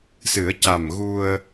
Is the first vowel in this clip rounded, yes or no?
no